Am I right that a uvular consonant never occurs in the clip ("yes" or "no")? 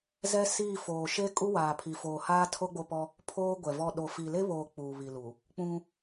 yes